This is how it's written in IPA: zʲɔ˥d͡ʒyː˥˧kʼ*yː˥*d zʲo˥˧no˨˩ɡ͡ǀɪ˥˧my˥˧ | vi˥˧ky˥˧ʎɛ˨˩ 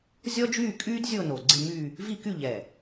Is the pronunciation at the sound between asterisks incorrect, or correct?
correct